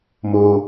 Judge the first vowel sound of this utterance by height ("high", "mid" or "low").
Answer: mid